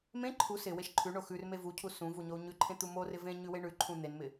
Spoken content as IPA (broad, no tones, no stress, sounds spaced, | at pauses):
m ẽ ǃʰ u s ɪ w e ʃ ǃʰ ʉ ɳ o x ʉ r m e v u cʰ u s ũ v u ɲ o u̯ ɲ ʉ ǃʰ ẽ t̪ u m o r ɪ v ẽ ɲ ʉ w e ɳ ʉ ǃʰ ũ n̪ e n m ɪ